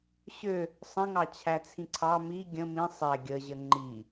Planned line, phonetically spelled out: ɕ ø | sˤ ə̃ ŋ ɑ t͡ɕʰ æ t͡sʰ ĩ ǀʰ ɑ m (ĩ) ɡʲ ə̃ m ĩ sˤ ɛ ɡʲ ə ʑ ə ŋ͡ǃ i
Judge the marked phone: incorrect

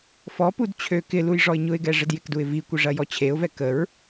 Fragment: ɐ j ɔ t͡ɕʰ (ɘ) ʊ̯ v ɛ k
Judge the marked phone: incorrect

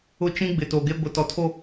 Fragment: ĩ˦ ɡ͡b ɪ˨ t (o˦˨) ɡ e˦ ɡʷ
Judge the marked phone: incorrect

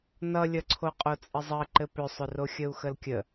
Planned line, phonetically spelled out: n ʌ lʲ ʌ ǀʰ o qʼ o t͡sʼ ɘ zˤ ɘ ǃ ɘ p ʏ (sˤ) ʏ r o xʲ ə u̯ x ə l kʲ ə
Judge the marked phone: correct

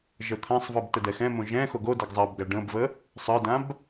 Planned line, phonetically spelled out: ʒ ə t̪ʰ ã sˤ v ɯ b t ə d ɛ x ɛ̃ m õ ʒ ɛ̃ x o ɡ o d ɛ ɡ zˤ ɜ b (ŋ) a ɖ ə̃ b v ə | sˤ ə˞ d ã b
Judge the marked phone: incorrect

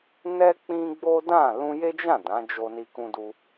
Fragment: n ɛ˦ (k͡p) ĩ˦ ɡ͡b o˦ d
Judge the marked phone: correct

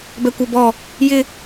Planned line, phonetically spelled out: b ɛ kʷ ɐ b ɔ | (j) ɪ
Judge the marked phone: correct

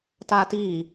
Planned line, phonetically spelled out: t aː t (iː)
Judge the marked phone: correct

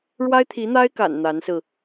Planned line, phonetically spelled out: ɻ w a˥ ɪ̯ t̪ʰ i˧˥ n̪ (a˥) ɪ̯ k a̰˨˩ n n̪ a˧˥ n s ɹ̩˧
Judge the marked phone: correct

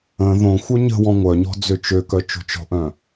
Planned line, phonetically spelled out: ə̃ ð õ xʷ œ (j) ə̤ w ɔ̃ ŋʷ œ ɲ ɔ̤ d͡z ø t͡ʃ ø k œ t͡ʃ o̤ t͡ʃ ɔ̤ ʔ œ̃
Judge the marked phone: incorrect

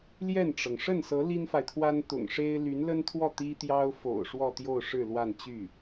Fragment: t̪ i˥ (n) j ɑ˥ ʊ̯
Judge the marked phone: incorrect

